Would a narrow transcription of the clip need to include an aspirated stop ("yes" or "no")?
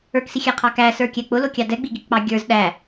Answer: yes